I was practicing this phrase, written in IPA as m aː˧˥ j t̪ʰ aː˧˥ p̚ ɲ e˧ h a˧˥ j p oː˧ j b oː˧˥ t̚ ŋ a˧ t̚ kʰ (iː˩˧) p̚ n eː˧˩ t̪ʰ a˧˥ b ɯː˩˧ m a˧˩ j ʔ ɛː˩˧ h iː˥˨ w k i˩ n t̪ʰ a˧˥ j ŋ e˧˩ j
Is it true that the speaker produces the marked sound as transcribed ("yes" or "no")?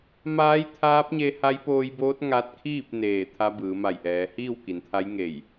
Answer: no